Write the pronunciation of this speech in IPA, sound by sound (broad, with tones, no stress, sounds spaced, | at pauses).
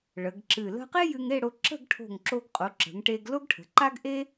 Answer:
ɭ ə˩˧ ɡ ǁ ɨ˧˩ l ə̤˥ q e˥ j ɨ˧ ŋ e˥˧ ɽ o˧ ǁ ə̤˥˧ ɡ ʈʰ o̤˧˩ ŋ ǁ o˧ ɡ qʼ o˩˧ ǁ ə̤˩˧ ŋ ʈ e˧ ɡ l o˥ ɡ ʈʰ ə̤˩˧ ǃ a˥ ɡ ʔ e˥